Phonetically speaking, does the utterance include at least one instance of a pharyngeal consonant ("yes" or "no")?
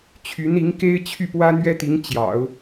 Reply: no